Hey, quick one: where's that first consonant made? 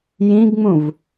palate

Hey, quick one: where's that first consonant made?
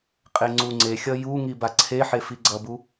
uvula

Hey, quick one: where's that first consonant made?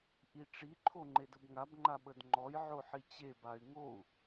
throat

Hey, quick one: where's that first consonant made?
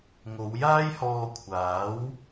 velum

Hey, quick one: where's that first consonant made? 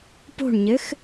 lips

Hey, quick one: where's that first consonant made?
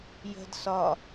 palate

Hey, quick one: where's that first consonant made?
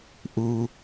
throat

